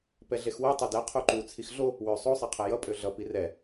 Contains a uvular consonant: yes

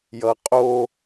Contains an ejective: yes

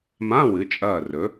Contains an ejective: yes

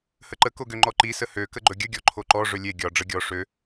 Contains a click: yes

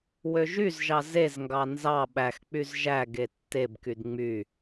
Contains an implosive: yes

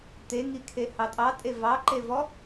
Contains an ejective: yes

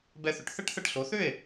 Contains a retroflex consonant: yes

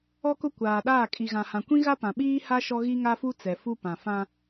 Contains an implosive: yes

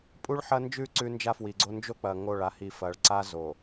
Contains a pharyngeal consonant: yes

